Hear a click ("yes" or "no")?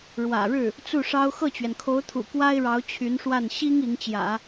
no